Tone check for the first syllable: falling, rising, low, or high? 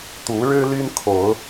rising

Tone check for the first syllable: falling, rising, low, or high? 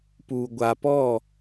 low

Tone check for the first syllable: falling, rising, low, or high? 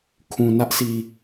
low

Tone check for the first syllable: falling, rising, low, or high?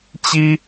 high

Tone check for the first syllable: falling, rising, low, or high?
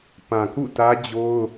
low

